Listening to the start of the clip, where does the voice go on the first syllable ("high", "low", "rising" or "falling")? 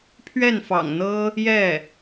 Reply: falling